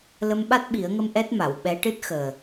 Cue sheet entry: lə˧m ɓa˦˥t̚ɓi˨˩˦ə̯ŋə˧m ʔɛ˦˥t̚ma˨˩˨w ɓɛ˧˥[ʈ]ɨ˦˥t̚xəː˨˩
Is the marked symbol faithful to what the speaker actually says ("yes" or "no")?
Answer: yes